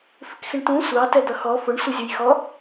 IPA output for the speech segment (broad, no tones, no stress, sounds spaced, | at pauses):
f ɪ k x ɪ ɳ t ũ sʷ ɑ t ɛ d̪ ʌ x ɔ f ʊ ɳ sʷ ɪ zʲ ʊ j x ɔ